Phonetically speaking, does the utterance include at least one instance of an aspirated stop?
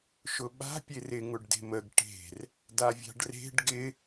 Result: no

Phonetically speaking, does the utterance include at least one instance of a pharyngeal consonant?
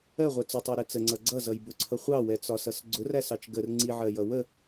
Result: yes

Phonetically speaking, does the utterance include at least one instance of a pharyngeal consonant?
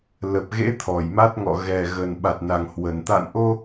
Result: no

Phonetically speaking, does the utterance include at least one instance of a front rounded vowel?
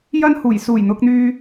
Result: yes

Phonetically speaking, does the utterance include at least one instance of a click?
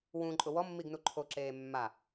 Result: yes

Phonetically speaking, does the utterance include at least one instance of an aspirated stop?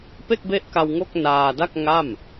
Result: no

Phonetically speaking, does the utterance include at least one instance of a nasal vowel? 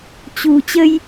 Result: no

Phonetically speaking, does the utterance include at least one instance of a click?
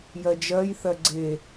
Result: yes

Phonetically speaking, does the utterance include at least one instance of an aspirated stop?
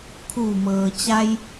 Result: yes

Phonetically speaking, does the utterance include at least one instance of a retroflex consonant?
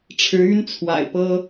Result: yes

